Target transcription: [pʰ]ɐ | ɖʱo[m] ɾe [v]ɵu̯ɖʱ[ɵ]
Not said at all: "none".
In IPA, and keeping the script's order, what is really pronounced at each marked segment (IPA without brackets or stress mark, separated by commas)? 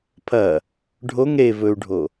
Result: pʰ, ŋ, v, o